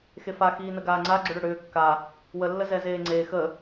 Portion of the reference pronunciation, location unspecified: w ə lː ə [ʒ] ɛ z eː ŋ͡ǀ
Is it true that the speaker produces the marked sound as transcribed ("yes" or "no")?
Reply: no